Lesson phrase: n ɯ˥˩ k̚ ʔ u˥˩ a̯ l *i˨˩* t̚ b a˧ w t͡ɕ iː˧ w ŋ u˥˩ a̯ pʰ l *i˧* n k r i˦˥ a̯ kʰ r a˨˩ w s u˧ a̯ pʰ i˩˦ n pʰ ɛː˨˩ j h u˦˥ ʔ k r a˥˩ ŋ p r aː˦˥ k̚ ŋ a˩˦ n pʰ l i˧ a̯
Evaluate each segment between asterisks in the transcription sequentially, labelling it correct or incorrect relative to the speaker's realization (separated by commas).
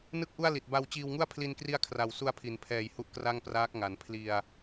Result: correct, correct